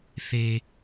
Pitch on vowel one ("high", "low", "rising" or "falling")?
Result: low